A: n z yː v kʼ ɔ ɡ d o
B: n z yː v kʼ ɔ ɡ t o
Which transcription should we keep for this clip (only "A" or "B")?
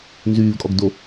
A